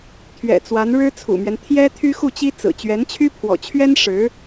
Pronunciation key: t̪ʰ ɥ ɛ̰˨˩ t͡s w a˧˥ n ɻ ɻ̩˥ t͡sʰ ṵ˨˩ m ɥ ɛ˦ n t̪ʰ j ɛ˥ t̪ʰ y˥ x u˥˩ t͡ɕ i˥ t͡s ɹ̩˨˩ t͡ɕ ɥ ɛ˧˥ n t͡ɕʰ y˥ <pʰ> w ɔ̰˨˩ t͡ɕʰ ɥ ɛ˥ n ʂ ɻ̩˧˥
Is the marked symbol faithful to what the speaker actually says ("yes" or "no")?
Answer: yes